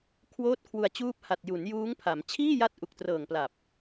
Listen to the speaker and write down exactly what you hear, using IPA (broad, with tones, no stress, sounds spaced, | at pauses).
kʰ w oː˦˥ t̚ kʰ w u˧ a̯ t͡ɕ uː˦˥ p̚ h a˨˩ t̚ j u˩˦ n j uː˦˥ ŋ pʰ a˩˦ m t͡ɕʰ iː˥˩ j a˦˥ t̚ ʔ u˨˩ k̚ t r ɤː˨˩ ŋ p l a˨˩ p̚